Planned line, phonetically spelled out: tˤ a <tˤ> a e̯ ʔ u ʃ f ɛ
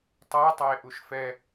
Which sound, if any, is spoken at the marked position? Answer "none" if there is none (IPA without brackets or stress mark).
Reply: tˤ